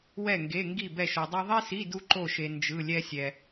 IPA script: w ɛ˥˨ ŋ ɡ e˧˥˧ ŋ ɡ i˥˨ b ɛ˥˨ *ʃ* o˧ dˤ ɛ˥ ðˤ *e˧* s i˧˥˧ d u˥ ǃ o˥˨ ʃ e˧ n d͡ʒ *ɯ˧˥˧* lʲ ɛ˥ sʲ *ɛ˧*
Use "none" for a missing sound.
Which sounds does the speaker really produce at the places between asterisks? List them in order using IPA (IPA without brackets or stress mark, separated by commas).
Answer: ʃ, e˥, ɯ˧˥˧, ɛ˧